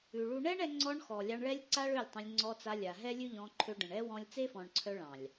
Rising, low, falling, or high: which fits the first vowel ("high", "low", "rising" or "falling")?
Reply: low